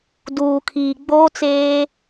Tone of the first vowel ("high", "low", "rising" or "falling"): low